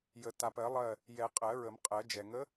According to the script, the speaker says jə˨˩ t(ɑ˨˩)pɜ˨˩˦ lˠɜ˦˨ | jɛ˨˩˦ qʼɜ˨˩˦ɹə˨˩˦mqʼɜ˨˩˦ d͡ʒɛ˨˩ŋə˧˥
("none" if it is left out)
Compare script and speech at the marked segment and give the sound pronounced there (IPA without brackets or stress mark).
a˨˩